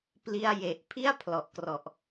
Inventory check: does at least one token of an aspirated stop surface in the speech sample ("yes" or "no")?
yes